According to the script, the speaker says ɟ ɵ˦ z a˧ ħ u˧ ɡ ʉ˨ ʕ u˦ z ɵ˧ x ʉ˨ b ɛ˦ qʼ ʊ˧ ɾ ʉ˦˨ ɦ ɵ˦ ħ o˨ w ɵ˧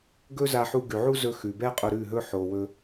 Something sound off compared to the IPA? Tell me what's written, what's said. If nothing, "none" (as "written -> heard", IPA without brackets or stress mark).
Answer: ɟ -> ɡ